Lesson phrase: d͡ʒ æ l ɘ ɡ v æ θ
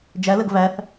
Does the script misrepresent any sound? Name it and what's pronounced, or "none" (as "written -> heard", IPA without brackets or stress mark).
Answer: none